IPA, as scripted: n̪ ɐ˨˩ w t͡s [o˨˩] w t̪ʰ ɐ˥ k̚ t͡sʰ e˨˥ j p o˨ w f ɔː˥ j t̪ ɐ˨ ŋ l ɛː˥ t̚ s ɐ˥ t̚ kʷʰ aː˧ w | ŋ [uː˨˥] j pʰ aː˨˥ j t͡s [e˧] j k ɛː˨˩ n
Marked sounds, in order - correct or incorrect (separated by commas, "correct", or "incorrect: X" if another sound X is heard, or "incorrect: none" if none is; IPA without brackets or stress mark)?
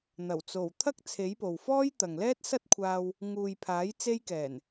correct, incorrect: uː˨, correct